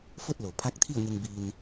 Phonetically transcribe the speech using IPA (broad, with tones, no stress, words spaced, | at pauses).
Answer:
fo˥˨t̚lo˩ pʰa˧˥k̚t̪ʰi˥˨ə̯ŋe˧ŋ bi˧n